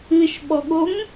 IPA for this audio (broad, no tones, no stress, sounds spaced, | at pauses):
ɨ ʃ ɓ ɔ ɠ o ŋ